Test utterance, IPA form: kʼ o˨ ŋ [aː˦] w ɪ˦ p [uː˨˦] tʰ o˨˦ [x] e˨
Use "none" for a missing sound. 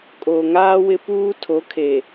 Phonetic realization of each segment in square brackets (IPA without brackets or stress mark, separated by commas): aː˦, uː˦, kʰ